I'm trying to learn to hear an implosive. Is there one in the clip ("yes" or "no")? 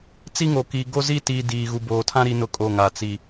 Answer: no